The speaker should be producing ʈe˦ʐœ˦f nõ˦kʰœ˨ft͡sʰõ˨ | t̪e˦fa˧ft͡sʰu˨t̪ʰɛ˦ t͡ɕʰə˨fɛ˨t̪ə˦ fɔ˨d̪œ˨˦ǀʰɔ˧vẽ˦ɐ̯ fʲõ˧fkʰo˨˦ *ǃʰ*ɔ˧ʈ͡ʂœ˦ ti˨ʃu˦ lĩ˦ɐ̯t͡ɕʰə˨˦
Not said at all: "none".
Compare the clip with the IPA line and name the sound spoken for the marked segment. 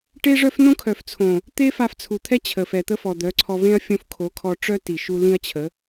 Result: kʰ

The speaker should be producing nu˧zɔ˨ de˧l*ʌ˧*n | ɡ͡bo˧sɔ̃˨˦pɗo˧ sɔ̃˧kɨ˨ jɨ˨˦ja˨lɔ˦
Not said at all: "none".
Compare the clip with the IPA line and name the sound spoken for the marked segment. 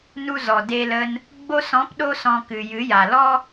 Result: ə˧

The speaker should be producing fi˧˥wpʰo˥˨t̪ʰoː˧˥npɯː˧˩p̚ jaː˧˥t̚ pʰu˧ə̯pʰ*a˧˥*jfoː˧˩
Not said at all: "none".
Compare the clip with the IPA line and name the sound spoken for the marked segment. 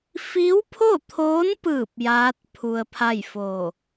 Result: a˥˨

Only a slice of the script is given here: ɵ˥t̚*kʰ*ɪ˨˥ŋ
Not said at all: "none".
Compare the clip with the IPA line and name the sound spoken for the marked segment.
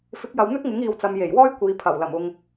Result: ŋ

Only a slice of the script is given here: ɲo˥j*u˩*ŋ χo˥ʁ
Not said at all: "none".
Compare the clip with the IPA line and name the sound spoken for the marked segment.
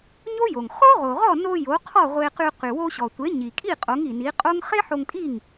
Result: o˩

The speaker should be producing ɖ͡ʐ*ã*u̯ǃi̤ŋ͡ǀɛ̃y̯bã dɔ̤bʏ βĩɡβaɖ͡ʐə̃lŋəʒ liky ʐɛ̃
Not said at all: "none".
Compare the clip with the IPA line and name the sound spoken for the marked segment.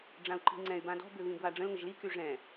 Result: ã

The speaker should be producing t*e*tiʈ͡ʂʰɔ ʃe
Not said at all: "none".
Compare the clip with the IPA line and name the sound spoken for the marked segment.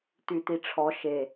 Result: y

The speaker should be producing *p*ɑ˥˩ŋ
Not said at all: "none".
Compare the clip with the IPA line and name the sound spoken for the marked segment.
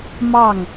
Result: m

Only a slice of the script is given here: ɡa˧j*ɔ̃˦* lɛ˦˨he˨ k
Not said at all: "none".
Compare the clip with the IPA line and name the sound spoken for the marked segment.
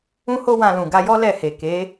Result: ɔ˦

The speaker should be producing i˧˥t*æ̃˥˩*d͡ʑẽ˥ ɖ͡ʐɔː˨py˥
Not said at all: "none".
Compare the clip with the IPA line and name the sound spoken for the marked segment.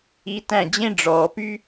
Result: æ̃˥˩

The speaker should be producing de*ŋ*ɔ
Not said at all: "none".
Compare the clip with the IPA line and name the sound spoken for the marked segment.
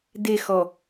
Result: x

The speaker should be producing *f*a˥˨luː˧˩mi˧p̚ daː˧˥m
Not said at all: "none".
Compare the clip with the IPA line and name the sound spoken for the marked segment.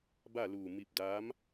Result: b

